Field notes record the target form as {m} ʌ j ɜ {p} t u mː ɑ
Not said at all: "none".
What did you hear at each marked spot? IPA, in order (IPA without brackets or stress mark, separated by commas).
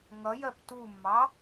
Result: ŋ, p